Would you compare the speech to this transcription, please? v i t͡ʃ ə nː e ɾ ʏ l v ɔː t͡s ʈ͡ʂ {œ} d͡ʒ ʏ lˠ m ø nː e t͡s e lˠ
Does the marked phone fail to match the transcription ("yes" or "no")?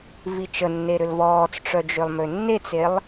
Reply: no